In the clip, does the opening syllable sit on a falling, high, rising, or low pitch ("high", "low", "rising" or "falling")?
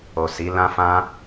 low